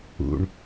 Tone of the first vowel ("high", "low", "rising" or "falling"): low